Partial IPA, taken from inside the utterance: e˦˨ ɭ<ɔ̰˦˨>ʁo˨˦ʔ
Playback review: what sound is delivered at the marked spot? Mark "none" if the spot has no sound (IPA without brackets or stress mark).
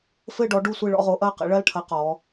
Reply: ɔ̰˦˨